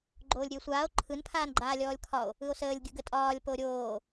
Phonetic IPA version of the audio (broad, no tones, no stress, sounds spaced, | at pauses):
ɡ͡ǃ oː lʲ ɾʲ ɯ e̯ sʷ aː o̯ ǃʰ ɯ n pʰ aː n ɡ͡ǃ aː lʲ ɔː lʲ kʰ ɒ o̯ | ɯ o̯ s əː lʲ ɡʲ ɯ ɡ ə tʼ ɒː lʲ p o ɾʲ oː